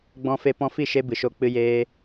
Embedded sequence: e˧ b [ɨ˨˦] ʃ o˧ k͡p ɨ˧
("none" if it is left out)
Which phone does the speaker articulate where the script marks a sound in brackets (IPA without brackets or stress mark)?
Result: ɨ˨